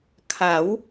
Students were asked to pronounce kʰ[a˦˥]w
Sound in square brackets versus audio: incorrect: a˩˦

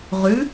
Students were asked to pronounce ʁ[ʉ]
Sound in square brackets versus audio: correct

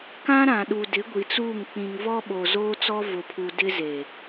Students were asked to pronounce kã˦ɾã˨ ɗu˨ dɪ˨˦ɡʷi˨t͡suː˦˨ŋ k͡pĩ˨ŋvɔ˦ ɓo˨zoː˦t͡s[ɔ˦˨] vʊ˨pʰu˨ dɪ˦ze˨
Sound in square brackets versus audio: incorrect: ɔ˦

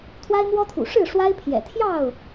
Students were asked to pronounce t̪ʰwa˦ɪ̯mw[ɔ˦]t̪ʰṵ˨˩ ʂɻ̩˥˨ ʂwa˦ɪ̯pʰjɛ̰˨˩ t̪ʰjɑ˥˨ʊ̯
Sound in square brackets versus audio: correct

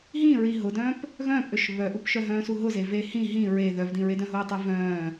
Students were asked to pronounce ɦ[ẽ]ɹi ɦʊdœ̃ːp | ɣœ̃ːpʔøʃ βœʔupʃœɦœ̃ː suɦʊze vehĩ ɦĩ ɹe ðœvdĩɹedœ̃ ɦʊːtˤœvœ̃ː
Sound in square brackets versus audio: incorrect: ĩ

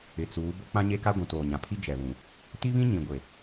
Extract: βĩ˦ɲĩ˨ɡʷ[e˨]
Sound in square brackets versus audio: correct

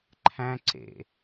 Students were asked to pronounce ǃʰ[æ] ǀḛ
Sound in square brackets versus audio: incorrect: æ̃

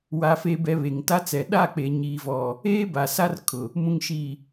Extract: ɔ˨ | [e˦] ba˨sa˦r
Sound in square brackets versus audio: incorrect: eː˦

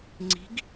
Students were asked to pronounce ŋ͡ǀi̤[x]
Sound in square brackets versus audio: incorrect: ɡ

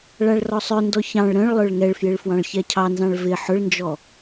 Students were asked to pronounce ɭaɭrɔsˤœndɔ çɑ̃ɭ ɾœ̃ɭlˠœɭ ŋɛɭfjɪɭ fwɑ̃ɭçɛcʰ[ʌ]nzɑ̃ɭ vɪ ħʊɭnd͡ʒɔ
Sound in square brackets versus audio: incorrect: ɑ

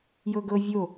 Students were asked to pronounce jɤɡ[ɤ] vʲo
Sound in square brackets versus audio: correct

